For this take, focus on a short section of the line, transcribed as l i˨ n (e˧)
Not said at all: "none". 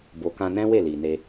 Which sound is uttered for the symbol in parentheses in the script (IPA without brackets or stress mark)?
e˧